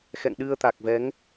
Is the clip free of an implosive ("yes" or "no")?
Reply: no